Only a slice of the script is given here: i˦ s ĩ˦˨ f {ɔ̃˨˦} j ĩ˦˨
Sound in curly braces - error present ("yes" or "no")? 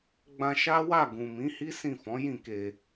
no